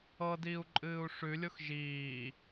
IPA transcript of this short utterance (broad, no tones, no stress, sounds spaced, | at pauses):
ɤ d iː u̯ ǃʼ ɨː u̯ ʂ ʉ lʲ o x ʒ iː